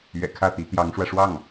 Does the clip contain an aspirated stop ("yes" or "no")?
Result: yes